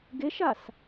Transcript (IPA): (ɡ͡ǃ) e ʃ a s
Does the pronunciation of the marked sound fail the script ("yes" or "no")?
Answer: yes